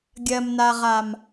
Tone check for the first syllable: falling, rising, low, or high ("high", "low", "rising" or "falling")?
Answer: low